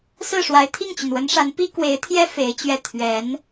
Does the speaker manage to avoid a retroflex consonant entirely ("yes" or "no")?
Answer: no